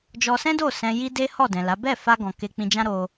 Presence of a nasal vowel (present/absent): present